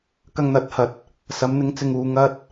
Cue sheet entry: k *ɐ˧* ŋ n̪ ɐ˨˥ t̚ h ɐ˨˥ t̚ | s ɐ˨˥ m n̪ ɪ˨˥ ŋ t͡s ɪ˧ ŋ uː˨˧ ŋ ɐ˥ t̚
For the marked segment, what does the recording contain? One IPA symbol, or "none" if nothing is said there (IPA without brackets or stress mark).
ɐ˧